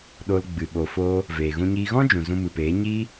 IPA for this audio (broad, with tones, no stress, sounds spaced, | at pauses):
ɗ o˧ l ɡ͡b ɨ˨ ɓ o˨ f oː˧ | v eː˨ ɣ ũ˧ ɲ iː˧ ɣ ɔ̃˦ d͡ʒ ũ˨ z ũ˧ m ɨ˨ p eː˨˦ ɲ iː˦